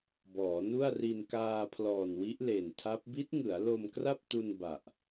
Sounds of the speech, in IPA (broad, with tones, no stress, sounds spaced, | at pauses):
b ɔː˩˦ n u˥˩ a̯ r i˧ n k aː˧ pʰ l ɔː˨˩ n w i˦˥ ʔ l e˨˩ n tʰ a˦˥ p̚ b i˦˥ t̚ ŋ ɯ˩˦ a̯ l o˧ m k r a˥˩ p̚ t u˧ n b a˨˩ ʔ